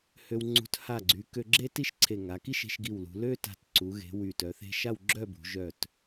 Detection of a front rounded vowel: present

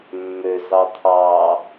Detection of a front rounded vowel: present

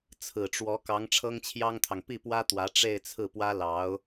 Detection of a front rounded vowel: absent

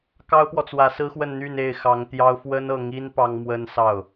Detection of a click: absent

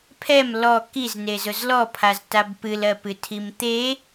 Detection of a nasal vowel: absent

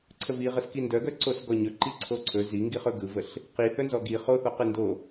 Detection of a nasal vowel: absent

